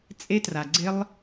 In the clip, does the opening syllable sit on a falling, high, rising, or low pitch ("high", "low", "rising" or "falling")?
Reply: high